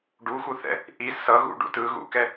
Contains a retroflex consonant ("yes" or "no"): yes